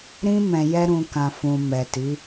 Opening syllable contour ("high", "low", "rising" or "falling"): high